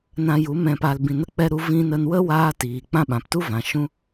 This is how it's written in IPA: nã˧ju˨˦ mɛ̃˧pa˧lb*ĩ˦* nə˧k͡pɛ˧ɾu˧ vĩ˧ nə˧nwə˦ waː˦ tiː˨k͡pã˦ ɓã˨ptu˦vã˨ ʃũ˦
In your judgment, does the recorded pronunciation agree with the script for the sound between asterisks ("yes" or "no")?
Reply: no